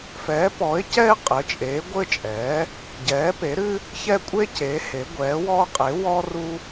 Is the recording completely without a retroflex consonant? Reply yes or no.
yes